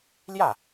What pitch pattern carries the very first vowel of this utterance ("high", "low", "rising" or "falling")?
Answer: falling